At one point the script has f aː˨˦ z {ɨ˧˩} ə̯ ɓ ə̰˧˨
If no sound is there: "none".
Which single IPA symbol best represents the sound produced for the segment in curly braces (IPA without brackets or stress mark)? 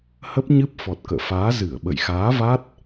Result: ɨ˧˩